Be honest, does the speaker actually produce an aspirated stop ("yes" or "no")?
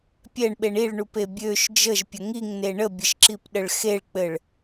no